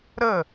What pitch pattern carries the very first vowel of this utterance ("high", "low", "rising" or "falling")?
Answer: falling